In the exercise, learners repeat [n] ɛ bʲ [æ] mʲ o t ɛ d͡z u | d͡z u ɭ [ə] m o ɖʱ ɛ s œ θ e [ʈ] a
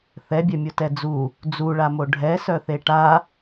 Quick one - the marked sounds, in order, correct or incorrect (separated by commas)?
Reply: incorrect, incorrect, incorrect, correct